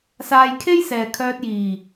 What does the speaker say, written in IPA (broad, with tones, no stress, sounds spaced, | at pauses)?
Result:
s aː˧ j kʰ e˥ j s ɛː˨ kʰ œː˧ t̚ j iː˨˩